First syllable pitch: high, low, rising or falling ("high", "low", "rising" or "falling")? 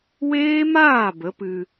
high